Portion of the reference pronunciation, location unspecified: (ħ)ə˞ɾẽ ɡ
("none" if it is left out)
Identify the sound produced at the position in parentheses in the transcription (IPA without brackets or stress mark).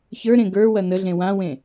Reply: ç